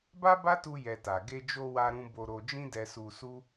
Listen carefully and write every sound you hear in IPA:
ba˦ba˦tu˧ jɛ˧ta˨ ɡe˧d͡ʒo˧ wa˦ɾũ˦ bo˧ ɾo˧d͡ʒĩ˦dɛ˧ su˧su˦

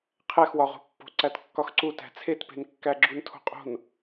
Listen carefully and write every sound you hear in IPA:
qʰæxwɒʁo̤pːo̤ ǀætkːɒxǀu tæ̤t͡sʰetpe̤n kːæɡ͡ǁuntʰo̤qʼo̤n

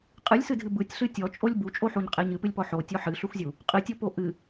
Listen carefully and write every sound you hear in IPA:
qʼɨlʲsɨdʱɨ bɯtʲɬɨ tʲɔt͡ʃʼolʲ but͡ʃʼoħuɲqʼeɲ ɨpɨlʲpɔ ħotʲɔ ħɨɬuxzʲu | qʼɨtʲɔpo ʔɨ

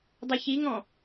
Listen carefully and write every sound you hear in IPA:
dˤɵçiŋɔ̃

